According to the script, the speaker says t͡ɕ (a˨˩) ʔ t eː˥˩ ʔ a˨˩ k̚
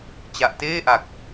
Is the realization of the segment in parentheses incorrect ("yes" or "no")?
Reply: no